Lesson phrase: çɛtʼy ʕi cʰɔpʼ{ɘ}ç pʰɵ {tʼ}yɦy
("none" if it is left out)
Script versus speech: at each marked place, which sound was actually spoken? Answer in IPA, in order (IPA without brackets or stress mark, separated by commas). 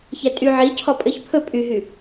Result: ɘ, pʼ